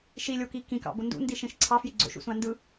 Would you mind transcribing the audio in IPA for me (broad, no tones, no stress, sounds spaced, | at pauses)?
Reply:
ʃ i lʲ o k i k ĩ k ɑ̰ b o n d ṵ n d i ʃ ĩ ʃ ǀʰ ɑ f j i ɡ͡ǀ o̰ ʃ ṵ s ũ ɐ̯ n d ɯ